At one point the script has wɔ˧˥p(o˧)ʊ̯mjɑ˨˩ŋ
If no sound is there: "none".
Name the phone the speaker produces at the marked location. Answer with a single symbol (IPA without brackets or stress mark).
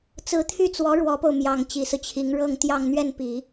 o˧